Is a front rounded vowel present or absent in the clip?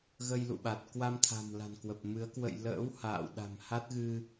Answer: absent